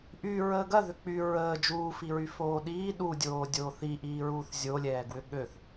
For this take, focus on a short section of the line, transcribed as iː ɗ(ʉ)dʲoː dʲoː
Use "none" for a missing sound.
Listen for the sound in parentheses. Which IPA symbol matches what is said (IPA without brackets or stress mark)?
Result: u